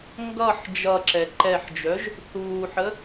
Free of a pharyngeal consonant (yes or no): no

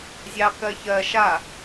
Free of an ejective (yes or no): yes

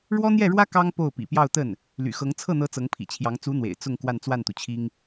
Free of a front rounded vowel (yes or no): no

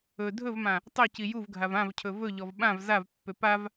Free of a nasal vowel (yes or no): no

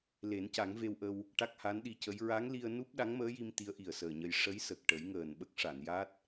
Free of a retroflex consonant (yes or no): no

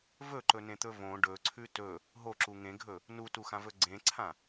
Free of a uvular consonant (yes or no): yes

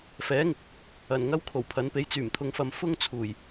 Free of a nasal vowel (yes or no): yes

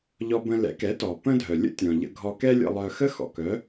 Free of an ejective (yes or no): yes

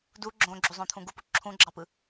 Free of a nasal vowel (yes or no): no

